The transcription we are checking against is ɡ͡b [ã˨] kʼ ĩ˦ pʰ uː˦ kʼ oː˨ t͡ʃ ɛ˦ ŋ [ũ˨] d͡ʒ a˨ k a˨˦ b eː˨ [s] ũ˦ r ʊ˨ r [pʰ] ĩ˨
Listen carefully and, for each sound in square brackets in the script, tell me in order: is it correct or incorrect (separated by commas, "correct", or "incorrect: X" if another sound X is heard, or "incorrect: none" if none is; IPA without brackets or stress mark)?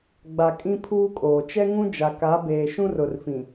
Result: incorrect: a˨, incorrect: ũ˦, incorrect: ʃ, incorrect: f